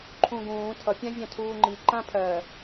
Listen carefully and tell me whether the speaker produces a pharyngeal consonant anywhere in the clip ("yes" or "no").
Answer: no